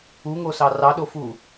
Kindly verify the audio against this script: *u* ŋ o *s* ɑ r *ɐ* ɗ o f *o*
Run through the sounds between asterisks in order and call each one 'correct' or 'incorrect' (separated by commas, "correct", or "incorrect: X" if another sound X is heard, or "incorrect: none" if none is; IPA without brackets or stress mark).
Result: correct, correct, incorrect: ɑ, incorrect: u